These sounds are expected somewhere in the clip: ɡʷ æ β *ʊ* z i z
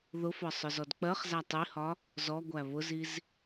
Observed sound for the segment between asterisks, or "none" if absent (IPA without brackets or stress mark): ʊ